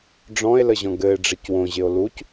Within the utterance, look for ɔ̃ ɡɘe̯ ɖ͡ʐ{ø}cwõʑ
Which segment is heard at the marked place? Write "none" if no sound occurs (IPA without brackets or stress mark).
ɘ